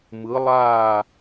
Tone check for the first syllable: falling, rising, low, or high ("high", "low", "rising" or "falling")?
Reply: rising